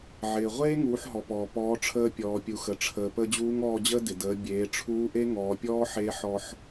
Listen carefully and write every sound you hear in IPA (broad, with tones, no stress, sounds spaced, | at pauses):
ʕ ɪː˩ ʁʷ eː˥ ŋ uː˩˧ ħ ɦ ɔ˩ p ɔː˩ p ɔː˩˧ ʈ͡ʂʰ əː˧ pʲ ɔː˩ pʲ u˩ x ə˩ ʈ͡ʂʰ əː˩ p ə˧ d͡ʑ uː˧˥ ŋ ɔː˧ d͡ʑ əː˥ d ɪ˩ d əː˩˧ bʲ eː˩˧ ʈ͡ʂʰ uː˧˥ ʔ e˥ ŋ ɔː˩˧ pʲ ɔː˥ ħ eː˧˥ ħ ɔ˧ ħ